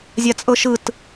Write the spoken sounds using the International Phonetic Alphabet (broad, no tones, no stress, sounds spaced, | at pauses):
zʲ a t͡sʼ ɤ ʃ ɯ t